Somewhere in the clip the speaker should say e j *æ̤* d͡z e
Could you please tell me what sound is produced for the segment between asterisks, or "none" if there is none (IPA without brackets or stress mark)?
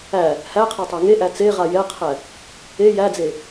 æ